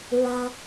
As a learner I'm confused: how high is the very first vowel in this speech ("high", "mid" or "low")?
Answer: low